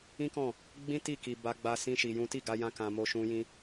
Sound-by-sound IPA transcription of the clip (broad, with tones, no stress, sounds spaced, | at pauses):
ĩ˦ k ɔ̃˦˨ | ɡ͡b ĩ˦ t i˦˨ k i˧ b a˧ ɡ͡b a˧ s ĩ˦ ʃ i˧ j ũ˦ t i˦˨ ɡ a˧ j ã˧ k ã˧ m o˦ ʃ ũ˦ j ĩ˦